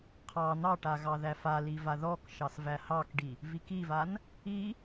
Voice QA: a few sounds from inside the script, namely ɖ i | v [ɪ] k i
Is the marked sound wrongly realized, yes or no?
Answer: yes